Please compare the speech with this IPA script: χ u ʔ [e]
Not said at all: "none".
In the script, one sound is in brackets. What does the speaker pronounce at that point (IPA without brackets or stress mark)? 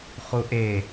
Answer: e